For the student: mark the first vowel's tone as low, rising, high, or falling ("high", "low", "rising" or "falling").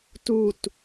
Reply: falling